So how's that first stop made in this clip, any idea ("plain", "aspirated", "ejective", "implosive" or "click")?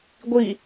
plain